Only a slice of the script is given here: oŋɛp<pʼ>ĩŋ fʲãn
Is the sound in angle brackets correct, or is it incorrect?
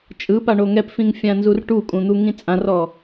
incorrect: f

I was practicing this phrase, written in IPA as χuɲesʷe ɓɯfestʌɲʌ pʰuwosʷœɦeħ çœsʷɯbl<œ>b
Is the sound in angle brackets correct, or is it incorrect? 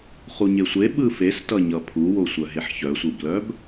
correct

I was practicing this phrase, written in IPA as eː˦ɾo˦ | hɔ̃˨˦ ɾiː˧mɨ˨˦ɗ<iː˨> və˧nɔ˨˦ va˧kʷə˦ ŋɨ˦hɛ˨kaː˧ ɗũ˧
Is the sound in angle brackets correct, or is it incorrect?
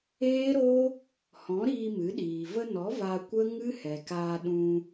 correct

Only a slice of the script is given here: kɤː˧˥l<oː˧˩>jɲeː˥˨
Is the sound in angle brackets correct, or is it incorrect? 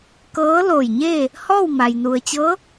correct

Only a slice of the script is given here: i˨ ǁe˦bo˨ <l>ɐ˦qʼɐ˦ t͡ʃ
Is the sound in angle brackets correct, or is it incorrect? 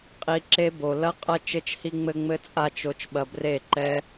correct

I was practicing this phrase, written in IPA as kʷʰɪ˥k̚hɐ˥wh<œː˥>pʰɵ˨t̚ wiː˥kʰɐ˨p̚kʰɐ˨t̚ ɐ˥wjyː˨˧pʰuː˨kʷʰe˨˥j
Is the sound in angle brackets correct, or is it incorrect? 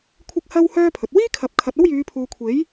correct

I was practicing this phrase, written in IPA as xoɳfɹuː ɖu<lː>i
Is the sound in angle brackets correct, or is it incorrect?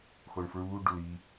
incorrect: l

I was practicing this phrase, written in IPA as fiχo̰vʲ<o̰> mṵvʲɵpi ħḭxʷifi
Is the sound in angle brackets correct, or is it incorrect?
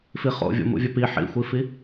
correct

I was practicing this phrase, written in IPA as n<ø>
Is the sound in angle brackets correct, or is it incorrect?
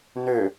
correct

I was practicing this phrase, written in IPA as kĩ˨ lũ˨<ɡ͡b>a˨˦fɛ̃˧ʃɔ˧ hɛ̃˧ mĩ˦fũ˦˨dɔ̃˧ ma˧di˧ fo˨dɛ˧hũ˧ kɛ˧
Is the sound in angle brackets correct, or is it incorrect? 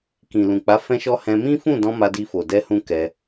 incorrect: k͡p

